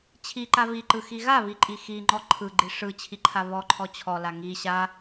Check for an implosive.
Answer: absent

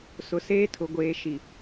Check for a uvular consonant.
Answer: absent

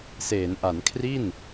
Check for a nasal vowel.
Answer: absent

